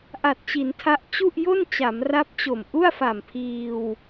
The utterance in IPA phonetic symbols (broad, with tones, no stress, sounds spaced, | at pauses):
ʔ a˨˩ t̚ t͡ɕ i˩˦ n tʰ a˦˥ ʔ t͡ɕ u˥˩ ʔ j o˥˩ n t͡ɕ a˩˦ m r a˦˥ p̚ t͡ɕ o˨˩ m ʔ u˥˩ a̯ f a˨˩ m pʰ iː˧ w